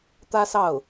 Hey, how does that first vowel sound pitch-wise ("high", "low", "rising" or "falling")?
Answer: high